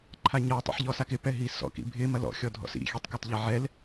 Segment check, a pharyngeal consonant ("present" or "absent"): present